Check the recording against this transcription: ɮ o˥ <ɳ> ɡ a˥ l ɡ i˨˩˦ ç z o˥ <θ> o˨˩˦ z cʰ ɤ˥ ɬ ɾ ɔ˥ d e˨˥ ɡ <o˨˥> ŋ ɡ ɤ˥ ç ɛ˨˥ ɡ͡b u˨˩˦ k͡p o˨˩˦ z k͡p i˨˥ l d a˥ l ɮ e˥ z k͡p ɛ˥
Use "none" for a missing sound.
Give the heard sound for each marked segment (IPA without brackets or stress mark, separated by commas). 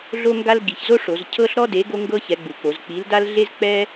ŋ, ʂ, o˥